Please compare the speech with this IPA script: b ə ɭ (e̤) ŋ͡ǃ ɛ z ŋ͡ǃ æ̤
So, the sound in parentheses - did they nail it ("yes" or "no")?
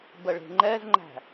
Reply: yes